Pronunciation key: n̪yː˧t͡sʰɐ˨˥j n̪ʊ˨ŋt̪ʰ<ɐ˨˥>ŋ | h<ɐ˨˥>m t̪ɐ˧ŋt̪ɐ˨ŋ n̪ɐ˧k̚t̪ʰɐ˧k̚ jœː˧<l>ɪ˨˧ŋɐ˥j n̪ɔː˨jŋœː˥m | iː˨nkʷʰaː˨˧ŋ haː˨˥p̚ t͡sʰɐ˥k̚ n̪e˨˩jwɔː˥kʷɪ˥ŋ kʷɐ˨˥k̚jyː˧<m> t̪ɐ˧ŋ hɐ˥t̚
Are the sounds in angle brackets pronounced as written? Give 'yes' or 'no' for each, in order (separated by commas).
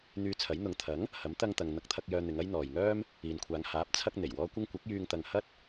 yes, yes, no, no